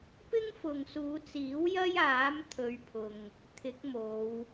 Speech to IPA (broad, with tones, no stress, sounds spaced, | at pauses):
p ɪ˥ ŋ f ʊ˨ ŋ s uː˨˧ t͡s iː˨˥ w j ɐ˥ j aː˨˥ m t̪ʰ ɵ˧ ɥ pʰ ʊ˨ ŋ | t̪ʰ ɪ˨˥ k̚ m o˨˧ w